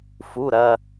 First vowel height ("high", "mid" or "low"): high